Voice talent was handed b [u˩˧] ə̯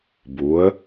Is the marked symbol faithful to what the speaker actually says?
yes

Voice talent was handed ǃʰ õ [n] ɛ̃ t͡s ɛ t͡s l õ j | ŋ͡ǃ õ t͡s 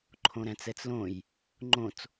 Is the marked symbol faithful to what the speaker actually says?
no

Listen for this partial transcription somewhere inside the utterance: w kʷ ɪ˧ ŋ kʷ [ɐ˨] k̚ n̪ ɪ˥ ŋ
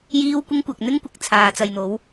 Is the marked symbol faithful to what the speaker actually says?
yes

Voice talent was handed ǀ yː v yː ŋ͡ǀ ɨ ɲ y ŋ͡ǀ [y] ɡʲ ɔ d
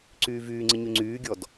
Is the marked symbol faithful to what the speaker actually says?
no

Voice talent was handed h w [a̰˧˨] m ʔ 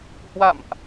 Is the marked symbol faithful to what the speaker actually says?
yes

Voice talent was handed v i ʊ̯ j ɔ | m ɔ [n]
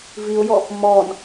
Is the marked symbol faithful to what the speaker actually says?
yes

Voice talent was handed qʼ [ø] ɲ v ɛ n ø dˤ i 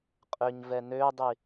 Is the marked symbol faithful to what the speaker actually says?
yes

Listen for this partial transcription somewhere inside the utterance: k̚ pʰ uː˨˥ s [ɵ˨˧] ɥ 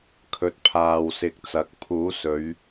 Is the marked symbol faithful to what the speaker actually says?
yes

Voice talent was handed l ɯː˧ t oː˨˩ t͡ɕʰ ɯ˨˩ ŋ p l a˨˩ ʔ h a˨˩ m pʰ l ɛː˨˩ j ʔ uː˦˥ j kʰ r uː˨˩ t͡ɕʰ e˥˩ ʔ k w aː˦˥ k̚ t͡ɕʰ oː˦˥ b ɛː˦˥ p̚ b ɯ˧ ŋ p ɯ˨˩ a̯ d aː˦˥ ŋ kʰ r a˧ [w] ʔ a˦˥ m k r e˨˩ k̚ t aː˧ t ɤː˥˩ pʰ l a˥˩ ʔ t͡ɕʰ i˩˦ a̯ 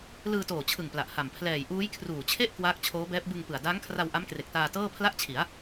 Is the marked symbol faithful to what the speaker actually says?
yes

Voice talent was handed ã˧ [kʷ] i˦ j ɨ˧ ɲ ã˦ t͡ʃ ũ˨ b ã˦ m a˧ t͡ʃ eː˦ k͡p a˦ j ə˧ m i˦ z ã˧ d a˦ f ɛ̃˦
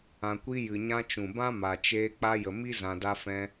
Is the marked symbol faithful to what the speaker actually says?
yes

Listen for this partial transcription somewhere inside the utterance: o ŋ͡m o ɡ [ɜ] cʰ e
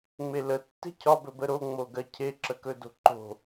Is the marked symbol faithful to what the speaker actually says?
yes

